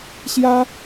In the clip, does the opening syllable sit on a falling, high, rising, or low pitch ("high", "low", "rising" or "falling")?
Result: high